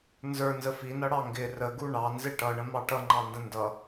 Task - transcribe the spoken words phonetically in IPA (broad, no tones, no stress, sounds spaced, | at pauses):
n z ə˞ n z ə f i n ʌ ɽ ɑ ŋ ɡ ɪ r ə ɡ u ɳ ɑ n z ɪ ʈ ʌ ɳ ə̃ m ɑ ʈ ʌ ŋ͡ǃ ɑ n d ə̃ n d ʌ